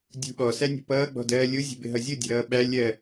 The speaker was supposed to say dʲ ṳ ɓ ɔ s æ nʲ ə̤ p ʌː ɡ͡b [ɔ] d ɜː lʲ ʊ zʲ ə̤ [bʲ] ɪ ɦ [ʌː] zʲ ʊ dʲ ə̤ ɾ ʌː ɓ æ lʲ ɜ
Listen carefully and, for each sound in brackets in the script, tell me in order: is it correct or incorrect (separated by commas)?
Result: incorrect, incorrect, incorrect